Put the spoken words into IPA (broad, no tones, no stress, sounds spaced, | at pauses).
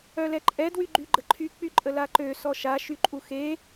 œ l ɛ ǃʼ ɛ d w y ɡ͡ǃ y ɡ͡ǃ ə ǃʰ y k͡p y ǃʼ ə l a ǃ ø s ɔ ʃ a ʃ y ǃʼ u x e